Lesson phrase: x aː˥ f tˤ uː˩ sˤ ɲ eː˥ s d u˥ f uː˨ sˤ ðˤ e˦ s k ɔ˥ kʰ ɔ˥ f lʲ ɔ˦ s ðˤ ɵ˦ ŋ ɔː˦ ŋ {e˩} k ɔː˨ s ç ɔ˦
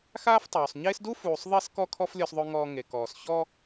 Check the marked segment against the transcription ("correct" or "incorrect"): incorrect